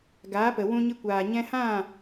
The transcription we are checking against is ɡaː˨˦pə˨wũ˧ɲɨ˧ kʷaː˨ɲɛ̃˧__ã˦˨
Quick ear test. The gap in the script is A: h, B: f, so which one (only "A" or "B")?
A